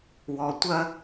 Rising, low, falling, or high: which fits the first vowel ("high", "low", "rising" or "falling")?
low